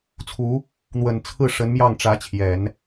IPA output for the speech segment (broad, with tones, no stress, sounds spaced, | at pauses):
t͡sʰ u˧˥ | n̪ w ə˨˩ n t͡sʰ ɹ̩˥˩ ʂ ə˧˥ n m j ɑ˥˩ ŋ ʈ͡ʂ ä˧˥ t͡ɕʰ j ɛ˨˩˦ n